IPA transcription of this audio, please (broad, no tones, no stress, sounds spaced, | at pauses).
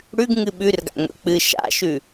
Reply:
ɽ ʉ ɡ ŋ ɨ ɓ ʉ r ɡ a̰ ŋʷ ḛ k͡p ɨ ʃ a̰ ʃ ʉ